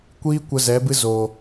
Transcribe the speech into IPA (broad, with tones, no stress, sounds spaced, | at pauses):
kʷ iː˦ kʷ ə˧ z ɛ˨˦ b ɨ˦ z oː˨